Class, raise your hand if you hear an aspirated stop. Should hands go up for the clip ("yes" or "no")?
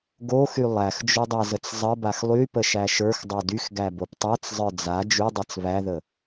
no